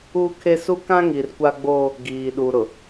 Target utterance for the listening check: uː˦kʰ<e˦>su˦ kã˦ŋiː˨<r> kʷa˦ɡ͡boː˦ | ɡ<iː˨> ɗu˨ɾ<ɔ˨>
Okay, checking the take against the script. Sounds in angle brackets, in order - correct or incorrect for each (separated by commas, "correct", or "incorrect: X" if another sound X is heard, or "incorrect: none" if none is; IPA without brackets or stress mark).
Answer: correct, correct, correct, incorrect: ʊ˨